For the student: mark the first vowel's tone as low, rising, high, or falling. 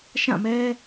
falling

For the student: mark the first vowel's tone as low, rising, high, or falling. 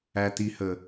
low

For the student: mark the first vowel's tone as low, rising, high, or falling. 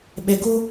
low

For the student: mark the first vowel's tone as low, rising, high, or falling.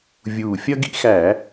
low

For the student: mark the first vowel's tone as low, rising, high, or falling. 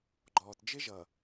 low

